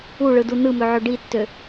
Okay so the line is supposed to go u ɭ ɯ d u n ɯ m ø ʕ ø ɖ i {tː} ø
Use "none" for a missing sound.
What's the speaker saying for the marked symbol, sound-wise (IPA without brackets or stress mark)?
tː